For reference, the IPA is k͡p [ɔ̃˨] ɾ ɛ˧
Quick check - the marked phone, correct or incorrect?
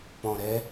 correct